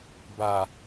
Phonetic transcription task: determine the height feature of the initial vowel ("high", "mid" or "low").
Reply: low